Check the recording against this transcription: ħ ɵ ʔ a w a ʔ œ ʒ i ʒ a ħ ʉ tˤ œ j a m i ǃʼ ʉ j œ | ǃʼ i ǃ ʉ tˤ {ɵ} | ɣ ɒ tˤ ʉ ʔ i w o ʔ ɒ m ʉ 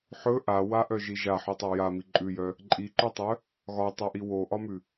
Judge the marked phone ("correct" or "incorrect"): incorrect